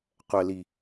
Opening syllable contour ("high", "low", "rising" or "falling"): low